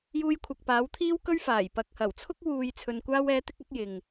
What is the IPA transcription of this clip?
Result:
juː˧jkʷʰɐ˨k̚paː˨˥w t̪ʰiː˥wkɵ˥ɥfaː˨˩j pɐ˨k̚hɐ˨˩wt͡sʰʊ˥k̚ wuː˨jt͡sʰɵ˨nkʷaː˧wɛː˨˧ t̪ɪ˥k̚ɐ˥k̚jɪ˨ŋ

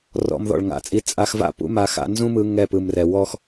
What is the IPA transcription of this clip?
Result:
rɔ̰˧m ðɔ̰˨ɭŋa̰˨˦t͡sʼi˧ t͡sʼa˧xva̰˦ pṵ˦ma˧ xa̰˧nzũ˦mɯ˧ ŋɛ˦˨pɯ˨mrɛ˨ wɔ˧x

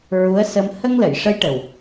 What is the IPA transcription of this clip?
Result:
ɹu˧˥ə̯sə˧m hə˧ŋlə˨˩˨jʂə˧˥j ʈə˨˩w

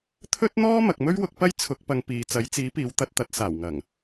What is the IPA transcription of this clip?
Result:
t̪ʰɵ˥t̚n̪ɔː˥ mɐ˨k̚mɵ˥ɥwʊ˧k̚ pɐ˥jt͡sʰʊ˨˥k̚pɐ˨˧ŋ piː˨ t͡sɐ˨˥jt͡siː˨˥piː˨˧w t̪ɐ˧t̚t̪ɐ˨˥t̚ saː˨˩wŋɐ˨˩ŋ

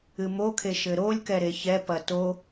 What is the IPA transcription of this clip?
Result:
ɨmokʰe ʃɘɾolʲkɛ ɾeçɛpɐ to

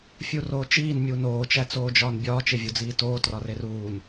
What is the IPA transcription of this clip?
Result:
fʲuroːt͡ʃiːn mʲuːnoː t͡ʃæt͡soːd͡ʒɒːnbʲɒː t͡ʃevʲod͡ziːtoː trɒreruːn

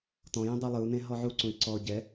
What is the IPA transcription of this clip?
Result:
tɔ̃jĩ dˤɤlˠɯu̯nẽ ɦɔʕuǀũi̯ ǀɔ ɟɛ

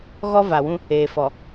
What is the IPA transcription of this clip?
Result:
ɣɔ˦va˨wũ˦ | eː˨ fɔ˨

